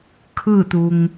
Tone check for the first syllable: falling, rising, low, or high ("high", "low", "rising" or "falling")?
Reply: falling